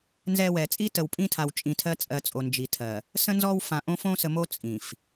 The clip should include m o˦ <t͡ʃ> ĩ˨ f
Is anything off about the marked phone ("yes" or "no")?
yes